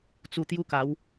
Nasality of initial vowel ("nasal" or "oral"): oral